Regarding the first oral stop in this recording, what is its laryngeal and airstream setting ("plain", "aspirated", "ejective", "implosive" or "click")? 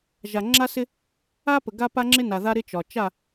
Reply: click